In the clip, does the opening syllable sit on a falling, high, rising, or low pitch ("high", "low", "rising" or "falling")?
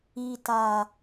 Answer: low